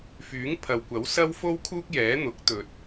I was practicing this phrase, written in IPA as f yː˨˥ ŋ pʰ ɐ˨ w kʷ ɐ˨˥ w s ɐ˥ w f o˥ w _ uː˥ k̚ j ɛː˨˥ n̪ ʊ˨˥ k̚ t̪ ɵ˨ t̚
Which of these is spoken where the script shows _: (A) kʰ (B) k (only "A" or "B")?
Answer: A